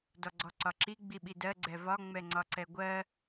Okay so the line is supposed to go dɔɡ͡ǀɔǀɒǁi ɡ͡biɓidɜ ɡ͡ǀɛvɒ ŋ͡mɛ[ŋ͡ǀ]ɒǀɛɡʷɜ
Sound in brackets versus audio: correct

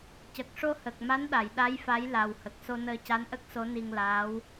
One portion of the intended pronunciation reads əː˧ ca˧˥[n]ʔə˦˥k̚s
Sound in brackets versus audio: correct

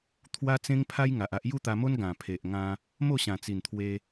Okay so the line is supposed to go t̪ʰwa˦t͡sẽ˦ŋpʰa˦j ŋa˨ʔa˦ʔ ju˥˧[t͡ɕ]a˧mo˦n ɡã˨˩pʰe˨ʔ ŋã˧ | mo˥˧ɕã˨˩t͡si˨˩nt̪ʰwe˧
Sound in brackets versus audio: incorrect: t̪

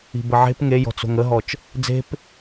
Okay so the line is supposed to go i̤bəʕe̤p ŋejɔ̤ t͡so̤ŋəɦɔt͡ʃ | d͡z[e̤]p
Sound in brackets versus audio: correct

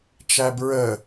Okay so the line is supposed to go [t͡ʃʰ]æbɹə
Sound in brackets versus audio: incorrect: t͡ʃ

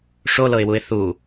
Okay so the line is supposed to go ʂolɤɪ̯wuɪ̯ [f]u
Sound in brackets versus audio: incorrect: θ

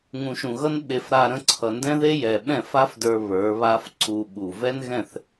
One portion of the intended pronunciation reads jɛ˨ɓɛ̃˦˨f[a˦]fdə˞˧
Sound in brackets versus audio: correct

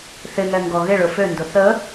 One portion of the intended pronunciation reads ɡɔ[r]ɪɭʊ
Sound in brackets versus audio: incorrect: ɣ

